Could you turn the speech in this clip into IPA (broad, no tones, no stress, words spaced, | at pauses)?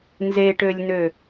nzeʈølʲnø